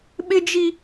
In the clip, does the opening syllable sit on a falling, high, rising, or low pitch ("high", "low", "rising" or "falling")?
high